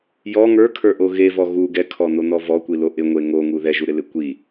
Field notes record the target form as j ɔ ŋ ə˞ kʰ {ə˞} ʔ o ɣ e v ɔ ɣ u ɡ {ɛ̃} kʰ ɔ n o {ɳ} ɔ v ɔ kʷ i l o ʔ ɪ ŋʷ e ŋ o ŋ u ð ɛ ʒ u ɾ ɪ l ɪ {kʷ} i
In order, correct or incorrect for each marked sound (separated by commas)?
correct, incorrect, incorrect, correct